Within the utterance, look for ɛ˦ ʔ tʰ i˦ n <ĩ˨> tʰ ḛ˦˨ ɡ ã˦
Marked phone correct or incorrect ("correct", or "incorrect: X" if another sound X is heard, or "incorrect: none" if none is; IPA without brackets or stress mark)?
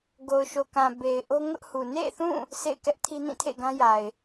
incorrect: ĩ˦˨